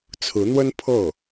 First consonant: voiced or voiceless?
voiceless